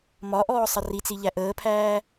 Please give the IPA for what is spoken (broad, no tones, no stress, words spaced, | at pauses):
mɒʔɔː sˤʌrit͡si ʎæʔəːpʰæː